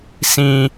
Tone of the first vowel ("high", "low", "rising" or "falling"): high